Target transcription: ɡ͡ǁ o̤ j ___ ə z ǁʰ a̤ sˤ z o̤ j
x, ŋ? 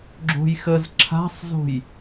x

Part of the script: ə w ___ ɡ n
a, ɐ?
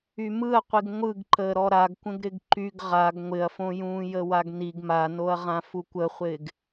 a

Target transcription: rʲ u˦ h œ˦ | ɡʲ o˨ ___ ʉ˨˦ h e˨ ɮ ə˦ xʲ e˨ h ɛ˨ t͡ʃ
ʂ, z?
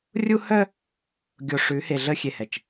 ʂ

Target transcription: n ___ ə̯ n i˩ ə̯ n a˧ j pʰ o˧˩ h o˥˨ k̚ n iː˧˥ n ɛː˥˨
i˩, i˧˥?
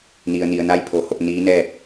i˩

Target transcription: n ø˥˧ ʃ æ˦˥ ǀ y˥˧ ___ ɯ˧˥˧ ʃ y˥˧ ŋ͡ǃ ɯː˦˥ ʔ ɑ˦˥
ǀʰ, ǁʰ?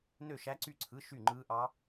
ǀʰ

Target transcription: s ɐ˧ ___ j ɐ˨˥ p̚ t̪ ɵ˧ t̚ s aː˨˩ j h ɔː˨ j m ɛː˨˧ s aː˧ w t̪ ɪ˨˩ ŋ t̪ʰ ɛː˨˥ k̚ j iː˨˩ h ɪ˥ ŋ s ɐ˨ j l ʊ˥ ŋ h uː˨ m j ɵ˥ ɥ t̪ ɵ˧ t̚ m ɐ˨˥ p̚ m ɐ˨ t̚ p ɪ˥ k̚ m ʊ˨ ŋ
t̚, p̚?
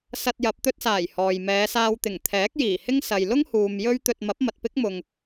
t̚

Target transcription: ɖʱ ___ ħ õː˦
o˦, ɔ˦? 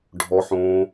ɔ˦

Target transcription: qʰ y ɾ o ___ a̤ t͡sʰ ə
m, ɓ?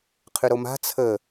m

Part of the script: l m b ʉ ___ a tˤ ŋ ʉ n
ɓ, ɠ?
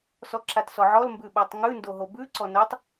ɓ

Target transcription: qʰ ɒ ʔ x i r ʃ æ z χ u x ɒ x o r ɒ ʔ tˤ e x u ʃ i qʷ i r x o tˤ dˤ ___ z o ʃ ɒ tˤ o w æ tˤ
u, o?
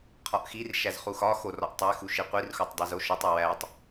o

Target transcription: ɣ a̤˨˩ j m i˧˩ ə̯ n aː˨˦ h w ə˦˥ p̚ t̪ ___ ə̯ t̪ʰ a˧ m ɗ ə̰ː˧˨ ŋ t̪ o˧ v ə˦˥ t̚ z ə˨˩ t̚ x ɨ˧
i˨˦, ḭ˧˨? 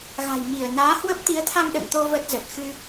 i˨˦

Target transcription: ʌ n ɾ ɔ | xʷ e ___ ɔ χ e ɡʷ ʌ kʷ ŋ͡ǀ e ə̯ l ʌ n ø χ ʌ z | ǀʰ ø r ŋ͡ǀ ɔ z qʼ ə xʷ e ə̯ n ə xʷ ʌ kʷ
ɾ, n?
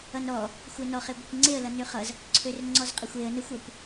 n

